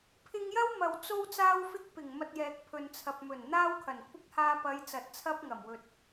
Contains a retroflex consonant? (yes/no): no